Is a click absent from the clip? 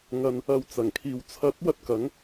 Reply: yes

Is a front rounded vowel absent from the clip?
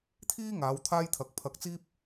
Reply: yes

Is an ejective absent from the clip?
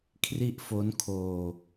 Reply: yes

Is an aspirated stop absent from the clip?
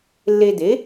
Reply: yes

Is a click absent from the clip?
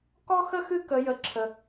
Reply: no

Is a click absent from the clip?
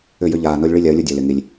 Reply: yes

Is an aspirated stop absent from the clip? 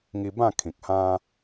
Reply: no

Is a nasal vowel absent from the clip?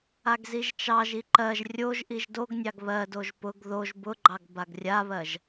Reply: yes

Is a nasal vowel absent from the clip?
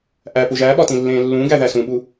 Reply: no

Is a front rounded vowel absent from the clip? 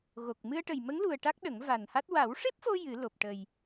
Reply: yes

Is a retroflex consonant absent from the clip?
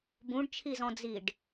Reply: no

